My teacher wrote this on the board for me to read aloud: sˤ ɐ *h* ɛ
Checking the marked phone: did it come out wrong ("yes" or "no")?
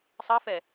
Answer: yes